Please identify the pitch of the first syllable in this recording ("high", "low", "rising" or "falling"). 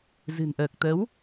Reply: low